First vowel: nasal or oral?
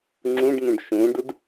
nasal